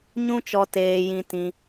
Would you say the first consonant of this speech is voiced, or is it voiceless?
voiced